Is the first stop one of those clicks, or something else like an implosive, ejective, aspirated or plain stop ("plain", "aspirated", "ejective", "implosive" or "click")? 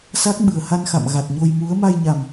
plain